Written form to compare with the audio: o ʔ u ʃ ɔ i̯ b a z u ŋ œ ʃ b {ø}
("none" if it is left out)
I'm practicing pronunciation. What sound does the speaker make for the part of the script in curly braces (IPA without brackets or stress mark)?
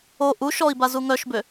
ø